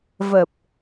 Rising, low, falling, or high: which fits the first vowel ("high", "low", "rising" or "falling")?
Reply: low